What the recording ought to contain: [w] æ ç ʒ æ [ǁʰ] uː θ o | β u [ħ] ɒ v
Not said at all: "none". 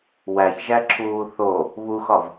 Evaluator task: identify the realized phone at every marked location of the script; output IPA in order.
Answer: w, ǁʰ, x

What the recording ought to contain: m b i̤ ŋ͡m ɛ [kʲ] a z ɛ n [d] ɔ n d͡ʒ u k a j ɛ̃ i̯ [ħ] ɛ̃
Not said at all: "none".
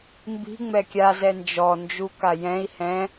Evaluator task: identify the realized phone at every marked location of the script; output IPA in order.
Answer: kʲ, d͡ʒ, h

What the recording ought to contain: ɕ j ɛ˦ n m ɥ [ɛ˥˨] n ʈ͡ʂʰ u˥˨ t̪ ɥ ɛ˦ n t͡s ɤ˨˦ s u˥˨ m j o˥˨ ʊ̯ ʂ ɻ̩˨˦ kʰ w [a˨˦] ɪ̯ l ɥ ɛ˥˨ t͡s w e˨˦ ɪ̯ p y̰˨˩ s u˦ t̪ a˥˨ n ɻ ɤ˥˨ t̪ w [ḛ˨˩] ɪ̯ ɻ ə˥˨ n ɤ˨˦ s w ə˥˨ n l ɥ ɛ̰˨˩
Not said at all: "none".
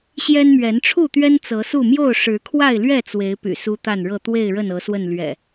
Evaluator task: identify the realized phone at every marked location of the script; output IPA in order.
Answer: ɛ˨˦, a˥˨, e˥˨

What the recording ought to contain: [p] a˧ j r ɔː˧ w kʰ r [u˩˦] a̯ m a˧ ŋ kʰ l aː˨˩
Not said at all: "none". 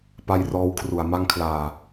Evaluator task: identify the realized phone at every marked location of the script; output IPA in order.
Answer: p, u˨˩

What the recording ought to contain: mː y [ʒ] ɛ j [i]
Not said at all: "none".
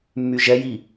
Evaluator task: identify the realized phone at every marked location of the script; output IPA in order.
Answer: ʒ, i

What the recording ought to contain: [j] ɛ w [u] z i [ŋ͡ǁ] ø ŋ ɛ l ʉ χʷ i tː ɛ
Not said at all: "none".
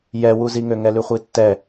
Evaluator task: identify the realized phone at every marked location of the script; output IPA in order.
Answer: j, u, ŋ

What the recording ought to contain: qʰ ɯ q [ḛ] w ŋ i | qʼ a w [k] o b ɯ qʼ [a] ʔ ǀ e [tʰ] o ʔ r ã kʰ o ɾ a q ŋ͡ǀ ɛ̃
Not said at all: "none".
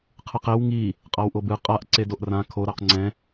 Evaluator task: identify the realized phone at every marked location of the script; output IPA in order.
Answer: e, ʔ, a, d

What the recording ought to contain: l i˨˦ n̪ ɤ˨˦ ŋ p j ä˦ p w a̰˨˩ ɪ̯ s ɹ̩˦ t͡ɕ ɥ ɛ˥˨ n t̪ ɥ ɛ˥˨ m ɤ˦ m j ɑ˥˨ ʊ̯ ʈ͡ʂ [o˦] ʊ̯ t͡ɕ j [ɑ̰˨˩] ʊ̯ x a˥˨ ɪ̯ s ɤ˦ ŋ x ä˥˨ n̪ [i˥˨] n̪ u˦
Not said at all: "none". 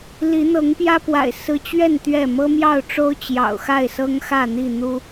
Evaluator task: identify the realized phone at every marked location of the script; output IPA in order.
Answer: o˦, ɑ̰˨˩, i˥˨

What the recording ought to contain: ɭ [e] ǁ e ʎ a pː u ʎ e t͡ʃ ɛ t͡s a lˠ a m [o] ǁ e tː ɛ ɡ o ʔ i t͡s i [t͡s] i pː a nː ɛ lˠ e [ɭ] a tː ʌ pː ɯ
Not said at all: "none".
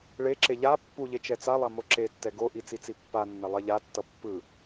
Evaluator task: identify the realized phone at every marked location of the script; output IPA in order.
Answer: e, o, t͡s, ʎ

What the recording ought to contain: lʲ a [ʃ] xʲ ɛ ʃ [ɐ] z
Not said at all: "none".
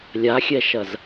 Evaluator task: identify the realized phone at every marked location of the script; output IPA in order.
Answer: none, ɐ

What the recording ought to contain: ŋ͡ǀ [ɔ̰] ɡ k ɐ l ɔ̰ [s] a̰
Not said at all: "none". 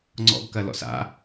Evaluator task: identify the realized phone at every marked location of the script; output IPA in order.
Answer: ɔ̰, s

